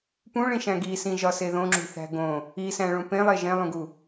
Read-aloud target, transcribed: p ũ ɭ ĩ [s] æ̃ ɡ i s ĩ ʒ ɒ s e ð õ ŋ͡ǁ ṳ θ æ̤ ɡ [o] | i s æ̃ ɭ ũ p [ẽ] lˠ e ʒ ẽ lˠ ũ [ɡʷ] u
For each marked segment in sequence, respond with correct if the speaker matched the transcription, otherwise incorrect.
incorrect: ʃ, incorrect: õ, correct, incorrect: ɡ

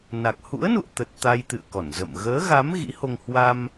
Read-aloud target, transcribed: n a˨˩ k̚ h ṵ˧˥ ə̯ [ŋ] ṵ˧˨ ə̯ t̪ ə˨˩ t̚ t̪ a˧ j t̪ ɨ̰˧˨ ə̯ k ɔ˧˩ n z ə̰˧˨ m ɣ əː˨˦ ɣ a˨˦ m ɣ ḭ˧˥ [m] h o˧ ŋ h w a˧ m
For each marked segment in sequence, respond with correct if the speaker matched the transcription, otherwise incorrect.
incorrect: n, incorrect: none

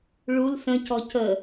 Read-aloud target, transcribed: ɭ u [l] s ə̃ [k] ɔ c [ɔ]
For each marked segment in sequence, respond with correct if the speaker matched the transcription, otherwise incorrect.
correct, incorrect: c, incorrect: ə

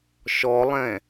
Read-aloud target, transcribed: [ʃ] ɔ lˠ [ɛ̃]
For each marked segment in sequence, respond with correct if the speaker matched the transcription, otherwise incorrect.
correct, correct

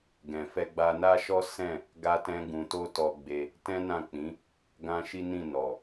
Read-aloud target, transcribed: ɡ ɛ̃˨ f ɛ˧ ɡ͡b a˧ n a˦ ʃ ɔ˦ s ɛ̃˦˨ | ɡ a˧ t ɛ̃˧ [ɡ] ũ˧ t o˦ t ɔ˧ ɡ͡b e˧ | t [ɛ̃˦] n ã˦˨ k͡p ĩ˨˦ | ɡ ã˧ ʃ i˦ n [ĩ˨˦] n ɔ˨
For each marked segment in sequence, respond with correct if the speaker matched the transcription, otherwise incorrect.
correct, correct, incorrect: ĩ˦˨

